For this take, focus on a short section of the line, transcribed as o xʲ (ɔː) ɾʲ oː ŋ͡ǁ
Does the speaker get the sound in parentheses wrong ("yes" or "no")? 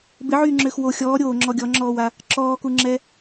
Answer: no